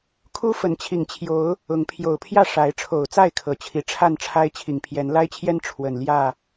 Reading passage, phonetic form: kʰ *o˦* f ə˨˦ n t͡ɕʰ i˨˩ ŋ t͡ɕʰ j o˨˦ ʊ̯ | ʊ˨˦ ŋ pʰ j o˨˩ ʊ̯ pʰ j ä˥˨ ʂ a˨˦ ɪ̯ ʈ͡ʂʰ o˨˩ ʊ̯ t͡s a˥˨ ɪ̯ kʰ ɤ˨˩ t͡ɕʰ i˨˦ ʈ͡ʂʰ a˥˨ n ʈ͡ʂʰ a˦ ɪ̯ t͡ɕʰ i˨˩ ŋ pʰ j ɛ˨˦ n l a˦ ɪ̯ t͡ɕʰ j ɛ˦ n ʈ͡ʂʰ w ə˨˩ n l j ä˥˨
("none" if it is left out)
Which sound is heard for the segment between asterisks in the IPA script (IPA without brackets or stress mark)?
u˦